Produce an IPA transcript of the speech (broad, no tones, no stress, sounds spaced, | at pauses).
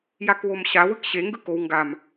j a k w o m ɕ a w ɯ k ɕ e ŋ ɡ ɯ k o w ŋ ɡ a m